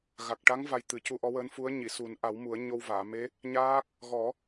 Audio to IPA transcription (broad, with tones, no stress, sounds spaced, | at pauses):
ɣ a˨˩ k̚ ʈ a˧˥ ŋ v a˧ j t̪ ɨ˨˩˦ c u˧ ʔ ɔ˧˥ w əː˧˥ n f u˧˥ ə̯ ɲ i˨˩˨ s u˨˩˦ n ʔ a˨˩˦ w m u˨˩˦ ə̯ ɲ o˧ w v aː˨˩˨ m e˧˥ | ɲ aː˦˥ k̚ | ɣ ɔ˨˩˦